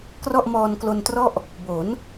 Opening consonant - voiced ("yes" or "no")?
no